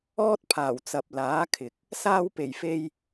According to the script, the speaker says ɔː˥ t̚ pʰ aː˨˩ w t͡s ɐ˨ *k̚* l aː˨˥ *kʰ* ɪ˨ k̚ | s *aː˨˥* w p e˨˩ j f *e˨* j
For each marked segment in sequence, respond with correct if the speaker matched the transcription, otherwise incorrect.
incorrect: p̚, correct, incorrect: aː˧, incorrect: e˧

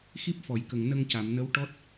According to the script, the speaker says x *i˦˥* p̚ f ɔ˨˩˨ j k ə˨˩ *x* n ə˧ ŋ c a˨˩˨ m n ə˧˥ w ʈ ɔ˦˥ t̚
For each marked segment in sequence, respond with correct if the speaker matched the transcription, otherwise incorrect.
correct, incorrect: ŋ

